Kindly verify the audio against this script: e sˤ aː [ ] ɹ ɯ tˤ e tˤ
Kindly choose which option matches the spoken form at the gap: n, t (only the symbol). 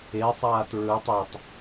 t